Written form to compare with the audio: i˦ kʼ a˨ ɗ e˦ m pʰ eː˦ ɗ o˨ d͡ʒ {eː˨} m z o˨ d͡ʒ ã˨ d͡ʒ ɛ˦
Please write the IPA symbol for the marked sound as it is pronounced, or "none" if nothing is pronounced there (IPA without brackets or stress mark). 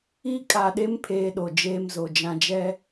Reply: eː˦